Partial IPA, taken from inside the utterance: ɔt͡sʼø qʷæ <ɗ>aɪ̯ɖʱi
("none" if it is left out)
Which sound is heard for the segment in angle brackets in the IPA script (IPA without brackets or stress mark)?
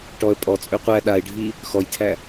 ɗ